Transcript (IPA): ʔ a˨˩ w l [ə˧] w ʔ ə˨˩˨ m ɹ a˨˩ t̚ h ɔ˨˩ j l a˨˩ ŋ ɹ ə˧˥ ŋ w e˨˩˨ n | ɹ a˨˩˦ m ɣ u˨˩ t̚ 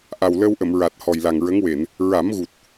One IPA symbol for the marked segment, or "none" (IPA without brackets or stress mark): ə˧